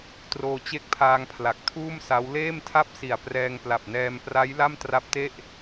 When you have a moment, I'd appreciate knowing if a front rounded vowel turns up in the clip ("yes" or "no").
no